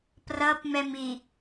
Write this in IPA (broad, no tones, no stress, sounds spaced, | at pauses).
p r ʌ p m ɛ m i